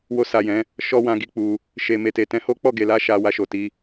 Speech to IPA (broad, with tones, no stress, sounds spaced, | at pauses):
w o˧ s a˨ j ɛ̃˨˦ | ʃ ɔ˦ w ã˧ ɡ i˦ k͡p u˧ | ʃ e˨ m e˨ t e˨ t ɛ̃˧ h o˦ k͡p ɔ˦˨ ɡ e˨ l a˧ ʃ a˧ w a˧ ʃ o˨ t i˧